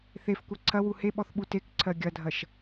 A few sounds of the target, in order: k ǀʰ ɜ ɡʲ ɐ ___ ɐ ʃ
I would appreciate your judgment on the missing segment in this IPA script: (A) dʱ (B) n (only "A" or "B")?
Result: A